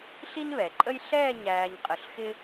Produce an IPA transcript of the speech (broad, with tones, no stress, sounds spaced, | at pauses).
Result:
ɬ i˥ n β ɛ˩˧ ǃʼ ə˥ j ɬ ɛː˥˧ ɲ æː˧ ɲ qʼ ə˧˩ ɬ x ɪ˥